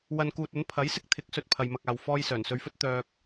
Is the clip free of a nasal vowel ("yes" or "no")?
yes